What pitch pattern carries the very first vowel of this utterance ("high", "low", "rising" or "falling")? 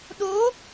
rising